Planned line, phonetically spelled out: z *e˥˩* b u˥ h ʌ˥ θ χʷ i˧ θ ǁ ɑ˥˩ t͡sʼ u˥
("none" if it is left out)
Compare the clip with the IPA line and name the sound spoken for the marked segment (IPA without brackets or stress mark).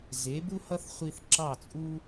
e˩˥